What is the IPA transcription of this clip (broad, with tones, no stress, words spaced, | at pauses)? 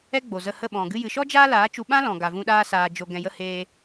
ɛ˦ɡ͡bo˨zə˧ hə˦˨ɓɔ̃˨ɡɨ˦ jɨ˨ʃɔ˦ d͡ʒaː˦laː˨˦t͡ʃu˧ɓã˦ lɔ̃˨ɡa˨vũ˧ ɗaː˦saː˧d͡ʒo˧ ɡɛ̃˨jə˧ heː˧